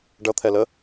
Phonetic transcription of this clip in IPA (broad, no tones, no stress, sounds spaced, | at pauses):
ɖ ʌ t̪ʰ ɛ l ə